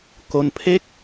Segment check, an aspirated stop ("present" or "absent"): present